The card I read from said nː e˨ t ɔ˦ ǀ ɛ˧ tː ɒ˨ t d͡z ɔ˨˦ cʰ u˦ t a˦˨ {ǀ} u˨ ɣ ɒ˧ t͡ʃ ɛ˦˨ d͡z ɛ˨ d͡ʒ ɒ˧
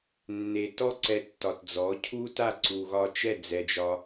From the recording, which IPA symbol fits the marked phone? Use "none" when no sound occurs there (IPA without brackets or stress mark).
ǀ